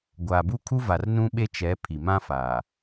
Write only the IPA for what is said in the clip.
ɡʷaː˨bu˦kʰu˦ va˨rnũ˦ɓe˦ t͡ʃɛ˨˦ pʰi˨mã˦ faː˨

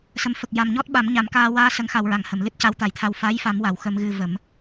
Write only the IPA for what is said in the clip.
sə˨˩mfə˨˩k̚ja˨˩m ɲɔ˦˥t̚ɓa˨˩˦m ɲa˨˩˦mkaː˧ waː˧sə˨˩˦ŋxa˨˩wɹa˨˩˨ŋ hə˨˩˨mlɨ˦˥t̚ ca˧˥wt̪a˨˩˦jt̪ʰa˧w fa˧˥jfa˨˩˦mwa˨˩˨w xə˧mɣɨ˧və˨˩˦m

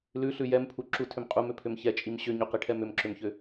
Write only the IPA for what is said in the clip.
lʉɬʉ jɛmpʰu ǁutʰʏm qʼumʏpʰʏm çɛt͡ʃʼim ɕʏɲuqiʈʰɛm ʏmǁʏmçʏ

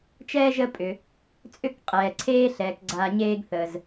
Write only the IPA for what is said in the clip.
t͡ʃɛː˥ʒə˦ pʼʏ˩ | t͡sʼʏ˥kqʼɛː˩ ǀʰeː˦ɬɛː˩kɡ͡ǀa˨ ɲeː˥ɡθəː˨z

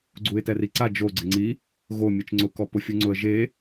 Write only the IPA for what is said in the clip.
ɡ͡ǀuɪ̯tɛriǀa d͡ʒo ɡ͡ǀɪŋ͡ǀi | ɣo mʲet͡ʃŋ͡ǀʊ kɔpʊfʲuŋ͡ǀʊə̯ ʒe

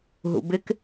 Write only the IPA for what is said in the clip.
ɦṵbɪk

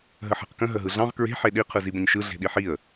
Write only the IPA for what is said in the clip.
ɦəħe̤qkə̃ ɦəɦɯɮɑ̃ʁ kɹe̤ ħeɗi qʰɯzibə̃ɲʃɯ ɮe̤ɗiħiə̯

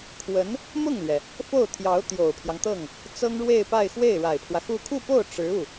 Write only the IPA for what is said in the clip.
kʰwə˧˥n | mʊ˥˩ŋlɥɛ˩ | fo˥˩ʊ̯t̪ʰjɑ˧˥ʊ̯ t̪jo˨˩ʊ̯pʰjɑ˦ŋt̪ɤ˥˩ŋ | t͡sɤ˥ŋɻwe˥˧ɪ̯pa˥˧ɪ̯ xwe˥˩ɪ̯ɻa˨˩ɪ̯pʰwä˦ xu˥˧ kʰu˥˧po˥˩ʊ̯ ʈ͡ʂɻ̩˧˥u˥˩

